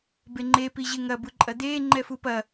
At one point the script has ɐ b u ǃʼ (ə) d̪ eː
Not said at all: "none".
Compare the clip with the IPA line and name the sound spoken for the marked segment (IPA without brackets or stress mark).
ɐ